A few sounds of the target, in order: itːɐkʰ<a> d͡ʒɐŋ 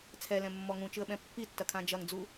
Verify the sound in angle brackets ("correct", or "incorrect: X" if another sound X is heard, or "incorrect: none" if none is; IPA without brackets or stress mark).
incorrect: ã